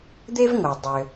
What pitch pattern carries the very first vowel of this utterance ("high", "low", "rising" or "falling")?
high